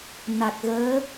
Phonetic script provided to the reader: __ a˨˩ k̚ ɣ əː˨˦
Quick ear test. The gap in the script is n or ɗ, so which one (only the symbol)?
n